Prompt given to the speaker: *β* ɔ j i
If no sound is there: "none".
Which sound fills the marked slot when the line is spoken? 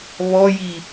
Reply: β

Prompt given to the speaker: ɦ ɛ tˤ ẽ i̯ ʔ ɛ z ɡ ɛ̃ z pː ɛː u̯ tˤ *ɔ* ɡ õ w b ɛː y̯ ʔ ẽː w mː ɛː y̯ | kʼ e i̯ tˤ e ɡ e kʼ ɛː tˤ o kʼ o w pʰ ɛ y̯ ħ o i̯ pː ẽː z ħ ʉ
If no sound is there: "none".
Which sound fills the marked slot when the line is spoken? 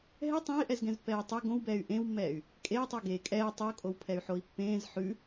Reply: o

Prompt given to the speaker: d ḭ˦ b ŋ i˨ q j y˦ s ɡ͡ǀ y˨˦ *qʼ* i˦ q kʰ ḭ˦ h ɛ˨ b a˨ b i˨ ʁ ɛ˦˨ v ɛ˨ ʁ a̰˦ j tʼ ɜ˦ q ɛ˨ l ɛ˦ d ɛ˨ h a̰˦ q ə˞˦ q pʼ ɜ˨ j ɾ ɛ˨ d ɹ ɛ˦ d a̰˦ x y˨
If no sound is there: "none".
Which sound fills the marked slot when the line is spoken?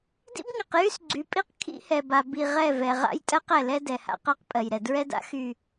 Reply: pʼ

